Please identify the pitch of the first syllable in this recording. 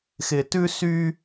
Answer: low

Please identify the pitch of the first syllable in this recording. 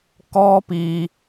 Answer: high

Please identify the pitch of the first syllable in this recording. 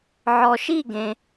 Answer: low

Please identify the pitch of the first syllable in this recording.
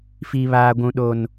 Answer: high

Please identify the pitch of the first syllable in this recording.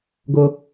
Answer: high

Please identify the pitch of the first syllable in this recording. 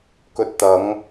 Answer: low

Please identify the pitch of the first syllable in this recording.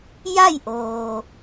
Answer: falling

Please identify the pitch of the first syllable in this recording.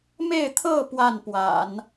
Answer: falling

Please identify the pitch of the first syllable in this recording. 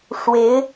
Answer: rising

